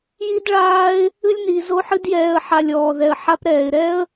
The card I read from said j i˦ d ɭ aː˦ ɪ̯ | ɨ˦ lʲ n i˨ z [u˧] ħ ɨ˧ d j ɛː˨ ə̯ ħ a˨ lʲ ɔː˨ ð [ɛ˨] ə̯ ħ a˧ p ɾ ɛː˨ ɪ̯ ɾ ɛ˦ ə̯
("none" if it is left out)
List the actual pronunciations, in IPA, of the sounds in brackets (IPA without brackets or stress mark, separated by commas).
o˧, ɛ˨